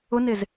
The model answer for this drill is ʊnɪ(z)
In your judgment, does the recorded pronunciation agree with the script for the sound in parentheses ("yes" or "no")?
yes